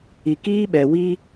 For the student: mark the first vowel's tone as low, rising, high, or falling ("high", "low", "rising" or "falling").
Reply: low